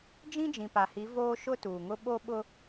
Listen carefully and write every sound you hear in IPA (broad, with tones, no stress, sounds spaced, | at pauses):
d͡ʒ ĩ˦ d͡ʒ ĩ˨ p a˨ h i˨˦ v oː˦ ʃ ʊ˦ t uː˨ ŋ ʊ˦ ɓ o˦ ɓ ʊ˦